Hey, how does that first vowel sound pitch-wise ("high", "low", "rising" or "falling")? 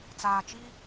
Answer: low